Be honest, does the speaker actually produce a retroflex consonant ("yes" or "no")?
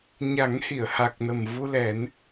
no